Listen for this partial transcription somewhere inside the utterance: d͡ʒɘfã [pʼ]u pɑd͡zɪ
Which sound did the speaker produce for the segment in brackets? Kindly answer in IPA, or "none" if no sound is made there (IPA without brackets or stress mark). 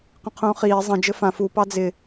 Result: f